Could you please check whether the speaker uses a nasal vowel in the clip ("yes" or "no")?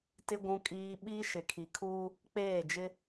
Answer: yes